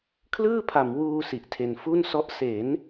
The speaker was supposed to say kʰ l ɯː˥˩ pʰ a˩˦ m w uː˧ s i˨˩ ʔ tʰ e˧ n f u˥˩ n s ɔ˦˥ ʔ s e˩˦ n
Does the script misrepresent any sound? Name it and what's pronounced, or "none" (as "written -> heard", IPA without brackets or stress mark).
none